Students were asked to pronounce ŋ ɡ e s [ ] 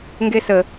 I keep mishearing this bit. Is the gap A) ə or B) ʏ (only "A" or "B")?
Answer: A